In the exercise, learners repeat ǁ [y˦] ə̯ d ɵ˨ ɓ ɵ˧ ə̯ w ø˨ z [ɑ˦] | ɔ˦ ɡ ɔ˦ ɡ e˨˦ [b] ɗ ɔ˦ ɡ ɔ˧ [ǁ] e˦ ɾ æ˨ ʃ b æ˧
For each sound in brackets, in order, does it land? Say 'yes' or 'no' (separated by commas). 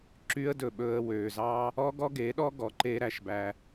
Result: yes, yes, no, no